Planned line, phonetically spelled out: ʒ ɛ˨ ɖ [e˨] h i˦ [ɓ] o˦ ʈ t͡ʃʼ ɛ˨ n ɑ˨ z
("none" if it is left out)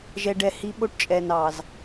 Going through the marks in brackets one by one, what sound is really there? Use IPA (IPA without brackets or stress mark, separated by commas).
ɛ˨, ɓ